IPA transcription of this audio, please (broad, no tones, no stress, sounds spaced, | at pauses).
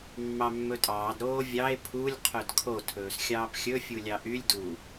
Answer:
mː ɑ mː ɵ tʼ ɑː d ɾ oː vʲ ɑ e̯ pʰ u lʲ qʰ œ d kʰ o tʰ ɵː s xʲ ɑː p xʲ ɵ fʲ u lʲ ɑ ʔ y lʲ d u